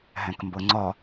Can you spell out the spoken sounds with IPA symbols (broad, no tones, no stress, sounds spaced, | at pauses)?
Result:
ɦ ɛ̃ k m b ɤ ŋ͡ǀ ɒ